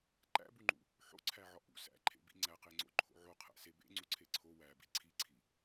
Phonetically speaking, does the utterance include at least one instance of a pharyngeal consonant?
yes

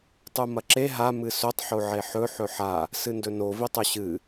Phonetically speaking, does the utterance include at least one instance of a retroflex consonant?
no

